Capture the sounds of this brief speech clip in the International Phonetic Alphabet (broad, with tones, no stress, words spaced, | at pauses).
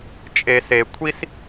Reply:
t͡ʃʼe˨se˨ kʷʰi˦s